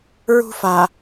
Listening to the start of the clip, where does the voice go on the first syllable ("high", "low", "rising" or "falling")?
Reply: high